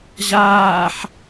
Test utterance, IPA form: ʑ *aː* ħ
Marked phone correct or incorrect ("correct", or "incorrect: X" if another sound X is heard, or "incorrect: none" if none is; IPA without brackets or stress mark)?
correct